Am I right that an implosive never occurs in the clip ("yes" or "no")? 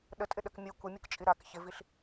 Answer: no